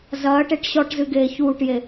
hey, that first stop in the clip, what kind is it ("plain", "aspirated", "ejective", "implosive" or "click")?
plain